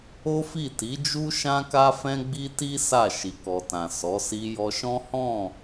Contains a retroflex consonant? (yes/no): no